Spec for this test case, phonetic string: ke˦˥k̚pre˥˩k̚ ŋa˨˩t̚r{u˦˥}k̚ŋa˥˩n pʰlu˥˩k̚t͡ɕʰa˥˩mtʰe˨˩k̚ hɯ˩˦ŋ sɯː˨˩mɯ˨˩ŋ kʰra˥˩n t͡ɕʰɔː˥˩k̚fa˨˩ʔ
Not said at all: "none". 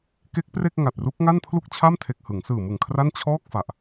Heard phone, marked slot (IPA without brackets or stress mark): u˦˥